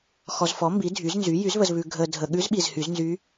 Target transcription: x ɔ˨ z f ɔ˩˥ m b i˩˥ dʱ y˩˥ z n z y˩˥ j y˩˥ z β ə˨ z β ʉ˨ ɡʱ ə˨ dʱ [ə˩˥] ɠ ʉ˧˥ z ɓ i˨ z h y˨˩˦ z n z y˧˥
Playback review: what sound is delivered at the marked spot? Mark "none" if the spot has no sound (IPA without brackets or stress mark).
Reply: ə˨